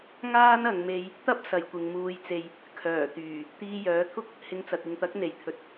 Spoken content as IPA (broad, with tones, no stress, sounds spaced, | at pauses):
ŋ aː˥ n ɐ˧ ŋ m e˥ j | t̪ ɐ˥ p̚ s ɐ˨ j kʷ ɪ˨ ŋ m uː˧ j t͡s e˧ j | kʰ œː˨˩ t̪ yː˨˩ | t̪ iː˧ j œː˨˥ t̪ʰ ʊ˥ k̚ | h ɪ˧ ŋ t͡s ɐ˨ t̚ ɪ˨ ŋ t̪ ɐ˨˥ k̚ n̪ e˨˩ j t̪ʰ ɵ˨ t̚